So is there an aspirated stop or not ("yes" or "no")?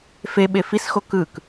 no